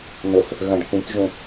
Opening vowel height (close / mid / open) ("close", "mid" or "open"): mid